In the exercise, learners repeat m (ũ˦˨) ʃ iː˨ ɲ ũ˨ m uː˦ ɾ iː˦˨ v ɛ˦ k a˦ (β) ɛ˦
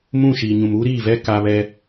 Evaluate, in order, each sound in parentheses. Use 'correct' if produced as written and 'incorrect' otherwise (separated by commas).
correct, correct